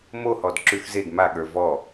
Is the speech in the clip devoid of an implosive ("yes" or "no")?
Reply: no